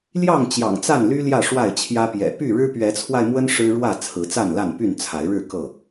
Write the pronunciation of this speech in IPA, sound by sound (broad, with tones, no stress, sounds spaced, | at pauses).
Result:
l j ɑ˥˨ ŋ t͡ɕ j ɑ̰˨˩ ŋ t͡s a˥˨ n l y˦ l j ä˥˨ ʂ w a˥˨ ɪ̯ t͡ɕʰ j ä˦ p j ɛ̰˨˩ p y˥˨ ɻ ɻ̩˦ p ɥ ɛ˨˦ t͡sʰ w a˧ ɪ̯ m w ə˦ n ʂ ɻ̩˦ ɻ w ä˥˨ t͡sʰ ɹ̩˨˦ t͡s a˥˨ n l a˥˨ n p y˥˨ n t͡sʰ a˨˦ ɪ̯ ɻ ɻ̩˥˨ k ɤ˥˨